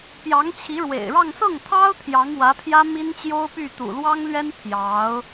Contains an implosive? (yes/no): no